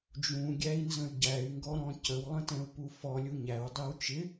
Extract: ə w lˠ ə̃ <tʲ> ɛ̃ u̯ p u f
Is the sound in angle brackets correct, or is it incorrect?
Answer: incorrect